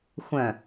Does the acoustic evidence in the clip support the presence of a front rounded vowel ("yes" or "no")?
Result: yes